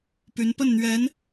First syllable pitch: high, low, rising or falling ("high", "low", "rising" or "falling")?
rising